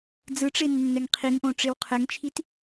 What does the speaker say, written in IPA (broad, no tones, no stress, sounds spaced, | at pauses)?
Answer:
d͡z ɯ ʈ͡ʂ e nː ɛ ŋ qʰ i ŋ ʔ õ ʈ͡ʂ e w qʰ ɛ ŋ t͡ʃʰ i t